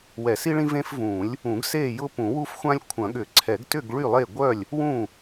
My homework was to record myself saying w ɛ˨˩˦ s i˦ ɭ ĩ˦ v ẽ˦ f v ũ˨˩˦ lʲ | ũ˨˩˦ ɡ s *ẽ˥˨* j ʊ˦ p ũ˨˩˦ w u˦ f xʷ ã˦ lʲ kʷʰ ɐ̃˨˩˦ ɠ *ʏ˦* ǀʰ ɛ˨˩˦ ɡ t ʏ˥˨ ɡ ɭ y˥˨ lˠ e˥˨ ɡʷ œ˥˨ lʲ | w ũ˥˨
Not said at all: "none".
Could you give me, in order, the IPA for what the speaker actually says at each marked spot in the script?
e˥˨, ʏ˨˩˦

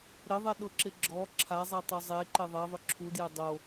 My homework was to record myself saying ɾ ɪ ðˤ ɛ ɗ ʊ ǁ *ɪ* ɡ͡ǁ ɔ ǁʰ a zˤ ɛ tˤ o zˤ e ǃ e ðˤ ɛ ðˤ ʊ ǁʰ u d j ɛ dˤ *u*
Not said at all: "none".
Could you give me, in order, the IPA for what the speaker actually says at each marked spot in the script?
ɪ, o

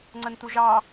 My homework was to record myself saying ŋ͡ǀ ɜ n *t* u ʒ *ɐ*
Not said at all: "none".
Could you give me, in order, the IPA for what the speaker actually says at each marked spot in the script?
t, ɑ

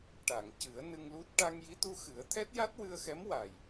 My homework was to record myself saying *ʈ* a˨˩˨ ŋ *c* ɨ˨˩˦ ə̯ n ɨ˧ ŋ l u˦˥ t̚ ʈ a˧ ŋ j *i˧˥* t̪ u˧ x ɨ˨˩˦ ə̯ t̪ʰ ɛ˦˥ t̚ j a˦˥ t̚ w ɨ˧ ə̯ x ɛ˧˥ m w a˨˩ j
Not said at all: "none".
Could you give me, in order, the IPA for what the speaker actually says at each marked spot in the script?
ʈ, c, i˧˥

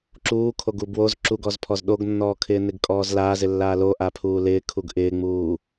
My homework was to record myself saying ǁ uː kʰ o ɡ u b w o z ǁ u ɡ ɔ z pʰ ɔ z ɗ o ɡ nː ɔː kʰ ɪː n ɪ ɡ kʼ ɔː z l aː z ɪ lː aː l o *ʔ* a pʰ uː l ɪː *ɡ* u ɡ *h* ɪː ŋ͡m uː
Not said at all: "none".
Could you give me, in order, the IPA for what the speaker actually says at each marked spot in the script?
ʔ, kʰ, ʔ

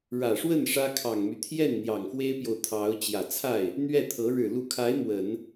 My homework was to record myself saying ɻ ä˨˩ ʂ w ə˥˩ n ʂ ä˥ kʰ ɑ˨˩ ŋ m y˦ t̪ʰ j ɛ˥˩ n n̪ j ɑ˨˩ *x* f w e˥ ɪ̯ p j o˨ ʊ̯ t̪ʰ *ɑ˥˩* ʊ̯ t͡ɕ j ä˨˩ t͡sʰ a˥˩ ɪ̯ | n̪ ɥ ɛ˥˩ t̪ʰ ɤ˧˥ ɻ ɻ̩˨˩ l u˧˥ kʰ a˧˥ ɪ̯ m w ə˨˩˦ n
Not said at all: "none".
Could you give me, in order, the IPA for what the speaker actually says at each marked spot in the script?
ŋ, ɑ˧˥

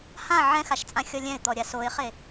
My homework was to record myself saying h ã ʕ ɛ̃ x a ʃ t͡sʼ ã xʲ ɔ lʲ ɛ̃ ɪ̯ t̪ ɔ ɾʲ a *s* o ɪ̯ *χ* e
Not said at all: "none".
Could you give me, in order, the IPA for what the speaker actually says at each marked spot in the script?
s, χ

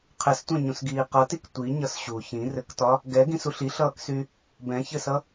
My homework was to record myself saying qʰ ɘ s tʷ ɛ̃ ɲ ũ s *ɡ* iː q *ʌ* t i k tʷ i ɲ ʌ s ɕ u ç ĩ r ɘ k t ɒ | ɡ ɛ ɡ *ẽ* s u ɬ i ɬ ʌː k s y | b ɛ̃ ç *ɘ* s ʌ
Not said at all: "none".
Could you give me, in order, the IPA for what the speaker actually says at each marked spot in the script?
ɡ, ʌ, ĩ, ɘ

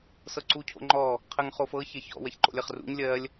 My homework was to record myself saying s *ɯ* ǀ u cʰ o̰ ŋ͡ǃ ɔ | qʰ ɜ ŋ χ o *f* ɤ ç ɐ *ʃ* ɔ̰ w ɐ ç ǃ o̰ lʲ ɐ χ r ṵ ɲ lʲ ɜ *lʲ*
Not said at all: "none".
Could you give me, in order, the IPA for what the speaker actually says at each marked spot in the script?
ɤ, f, ç, lʲ

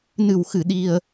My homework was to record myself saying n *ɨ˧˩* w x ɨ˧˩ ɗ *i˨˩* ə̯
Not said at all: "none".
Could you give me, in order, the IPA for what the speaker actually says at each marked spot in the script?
ɨ˧˩, i˨˩

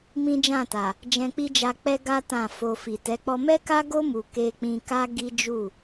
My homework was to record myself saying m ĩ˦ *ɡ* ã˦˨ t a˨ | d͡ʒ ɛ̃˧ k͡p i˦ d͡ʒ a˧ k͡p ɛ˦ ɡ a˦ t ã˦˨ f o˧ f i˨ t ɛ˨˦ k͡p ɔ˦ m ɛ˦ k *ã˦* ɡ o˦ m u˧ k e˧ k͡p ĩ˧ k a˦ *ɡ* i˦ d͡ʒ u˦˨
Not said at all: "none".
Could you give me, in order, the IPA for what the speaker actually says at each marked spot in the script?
d͡ʒ, a˦, ɡ

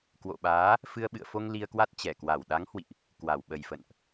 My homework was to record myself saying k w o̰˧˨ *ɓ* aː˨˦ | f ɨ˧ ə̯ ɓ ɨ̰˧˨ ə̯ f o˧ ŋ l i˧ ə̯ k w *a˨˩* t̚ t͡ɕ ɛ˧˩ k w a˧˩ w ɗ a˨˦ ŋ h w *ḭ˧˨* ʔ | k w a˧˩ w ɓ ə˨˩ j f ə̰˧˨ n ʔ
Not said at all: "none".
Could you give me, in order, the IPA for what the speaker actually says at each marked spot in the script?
ɓ, a˦˥, ḭ˧˨

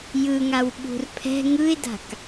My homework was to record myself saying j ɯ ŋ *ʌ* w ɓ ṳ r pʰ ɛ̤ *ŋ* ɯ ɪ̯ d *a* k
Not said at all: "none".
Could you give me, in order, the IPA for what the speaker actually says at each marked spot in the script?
a, ŋ, a̤

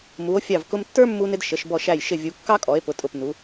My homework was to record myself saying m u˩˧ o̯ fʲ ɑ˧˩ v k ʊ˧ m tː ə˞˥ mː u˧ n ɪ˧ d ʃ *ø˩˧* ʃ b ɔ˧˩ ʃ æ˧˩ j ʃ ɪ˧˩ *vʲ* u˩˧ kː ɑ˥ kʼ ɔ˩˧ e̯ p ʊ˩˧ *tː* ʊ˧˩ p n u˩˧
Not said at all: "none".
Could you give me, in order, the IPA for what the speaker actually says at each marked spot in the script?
ə˩˧, vʲ, tʼ

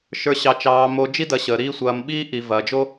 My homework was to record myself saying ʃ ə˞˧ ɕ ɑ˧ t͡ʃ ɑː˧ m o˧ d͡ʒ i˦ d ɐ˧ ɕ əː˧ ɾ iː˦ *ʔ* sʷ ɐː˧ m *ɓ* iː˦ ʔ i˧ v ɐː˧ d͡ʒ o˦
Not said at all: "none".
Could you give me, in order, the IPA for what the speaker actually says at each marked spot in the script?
none, ɓ

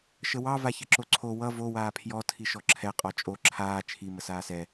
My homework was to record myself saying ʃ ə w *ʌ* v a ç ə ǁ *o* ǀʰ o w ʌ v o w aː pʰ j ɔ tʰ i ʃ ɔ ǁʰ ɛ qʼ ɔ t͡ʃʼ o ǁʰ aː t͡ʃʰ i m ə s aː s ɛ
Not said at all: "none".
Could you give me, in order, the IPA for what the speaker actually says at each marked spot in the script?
ɑ, o

